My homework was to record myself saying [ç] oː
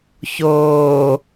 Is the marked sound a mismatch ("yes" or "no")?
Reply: no